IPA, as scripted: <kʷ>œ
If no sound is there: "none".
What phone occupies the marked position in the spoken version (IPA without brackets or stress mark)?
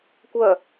kʷ